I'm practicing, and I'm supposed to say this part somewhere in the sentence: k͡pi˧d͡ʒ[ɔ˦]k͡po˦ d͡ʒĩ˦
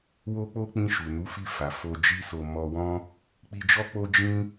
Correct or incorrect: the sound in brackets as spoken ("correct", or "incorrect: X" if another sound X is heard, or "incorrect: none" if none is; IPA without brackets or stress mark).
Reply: correct